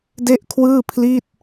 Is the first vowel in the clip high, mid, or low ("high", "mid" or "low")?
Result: mid